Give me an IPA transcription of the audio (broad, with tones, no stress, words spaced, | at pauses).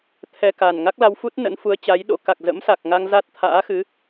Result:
t̪ʰɛ˧ka˨˩n ŋa˦˥k̚la˧wfu˦˥t̚ nə̰˧˥nfu˨˦ə̯t͡ɕa˨˦j ɗo̰˧˥ ka˨˩k̚zə̰˧˥msa˨˩k̚ŋa˧ŋ za˦˥t̚t̪ʰa̰ː˧˥ xɨ˨˦